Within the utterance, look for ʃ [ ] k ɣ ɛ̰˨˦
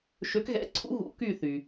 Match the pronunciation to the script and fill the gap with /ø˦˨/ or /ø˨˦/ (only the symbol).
ø˨˦